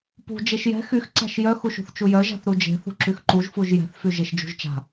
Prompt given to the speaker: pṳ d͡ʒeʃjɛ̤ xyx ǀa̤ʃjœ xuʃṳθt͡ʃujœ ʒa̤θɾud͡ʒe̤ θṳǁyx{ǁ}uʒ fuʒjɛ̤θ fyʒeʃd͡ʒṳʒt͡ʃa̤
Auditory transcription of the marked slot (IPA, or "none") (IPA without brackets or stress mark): ǃ